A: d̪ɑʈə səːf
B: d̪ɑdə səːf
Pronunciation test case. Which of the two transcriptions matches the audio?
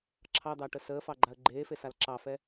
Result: A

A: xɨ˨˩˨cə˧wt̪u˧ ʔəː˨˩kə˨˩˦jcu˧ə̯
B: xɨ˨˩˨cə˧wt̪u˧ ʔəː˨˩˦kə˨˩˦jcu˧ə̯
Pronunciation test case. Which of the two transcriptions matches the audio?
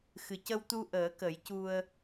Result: B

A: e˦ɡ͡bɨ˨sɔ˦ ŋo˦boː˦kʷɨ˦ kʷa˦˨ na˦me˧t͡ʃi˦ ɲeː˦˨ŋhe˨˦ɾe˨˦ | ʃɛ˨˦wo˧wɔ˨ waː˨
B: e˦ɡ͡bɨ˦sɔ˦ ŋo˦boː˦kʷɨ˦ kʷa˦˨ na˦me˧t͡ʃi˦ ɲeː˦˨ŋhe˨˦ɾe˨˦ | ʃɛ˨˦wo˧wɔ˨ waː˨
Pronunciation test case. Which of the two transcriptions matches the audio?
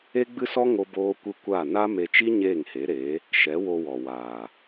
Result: B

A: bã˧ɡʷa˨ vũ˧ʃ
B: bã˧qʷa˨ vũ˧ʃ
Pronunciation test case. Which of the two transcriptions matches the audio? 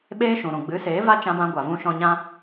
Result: A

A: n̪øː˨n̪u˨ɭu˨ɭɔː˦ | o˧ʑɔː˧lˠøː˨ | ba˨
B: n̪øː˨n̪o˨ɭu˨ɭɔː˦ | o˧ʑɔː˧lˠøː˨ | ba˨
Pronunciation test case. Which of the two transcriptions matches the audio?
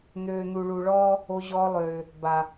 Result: A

